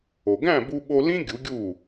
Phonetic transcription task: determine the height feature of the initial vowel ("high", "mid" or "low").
mid